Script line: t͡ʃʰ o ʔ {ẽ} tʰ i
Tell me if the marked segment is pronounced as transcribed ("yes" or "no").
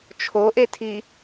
no